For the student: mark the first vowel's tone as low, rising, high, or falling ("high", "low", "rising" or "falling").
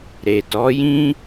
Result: low